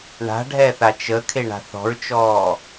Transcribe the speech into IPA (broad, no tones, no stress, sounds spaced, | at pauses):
ɳ a̤ ɖʱ ɛ θ a t͡ʃ ə kʰ e ɳ a̤ θ ɔ̤ ɹ t͡ʃ ɔː